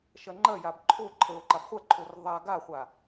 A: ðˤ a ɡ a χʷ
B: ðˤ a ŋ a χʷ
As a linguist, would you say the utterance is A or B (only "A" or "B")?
A